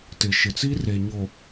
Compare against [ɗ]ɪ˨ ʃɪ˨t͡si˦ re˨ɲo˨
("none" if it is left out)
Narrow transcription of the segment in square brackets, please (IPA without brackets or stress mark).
t